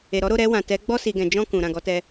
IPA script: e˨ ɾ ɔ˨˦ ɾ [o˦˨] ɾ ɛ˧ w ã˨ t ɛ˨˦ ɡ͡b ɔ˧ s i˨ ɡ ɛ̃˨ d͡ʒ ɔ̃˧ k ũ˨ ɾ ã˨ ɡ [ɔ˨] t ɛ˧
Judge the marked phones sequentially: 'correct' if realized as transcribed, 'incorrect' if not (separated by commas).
correct, incorrect